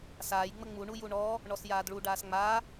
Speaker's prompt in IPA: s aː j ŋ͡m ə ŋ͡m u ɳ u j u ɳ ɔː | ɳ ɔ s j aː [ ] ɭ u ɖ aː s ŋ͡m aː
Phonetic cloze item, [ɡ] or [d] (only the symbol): d